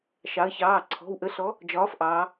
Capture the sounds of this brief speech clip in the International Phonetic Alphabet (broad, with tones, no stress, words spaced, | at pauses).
ʃɑ˩˧ə̯çɑː˩˧˩ǀʰɔ̤˩˧˩w ʔə˨˥ɬɔ˨˥ | d͡ʒɒː˨˥fʔɑː˩˧